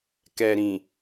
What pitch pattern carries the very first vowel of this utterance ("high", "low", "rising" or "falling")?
low